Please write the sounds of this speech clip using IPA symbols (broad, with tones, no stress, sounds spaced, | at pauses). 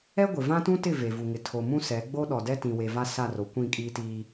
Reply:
ɛ˦ ɡʷ ɪ˨ v ã˦ t ũ˦ t ɪ˦˨ v e˨ v u˨ ŋ ɪ˨ tʰ o˨ m ũ˦ s ɛ˨˦ ɡ͡b o˦ ɗ ɔ˨ d ɛ˦ t ĩ˨ w e˨ v a˦ s a˦˨ r o˨ kʷ ĩ˦˨ kʼ iː˦ t iː˦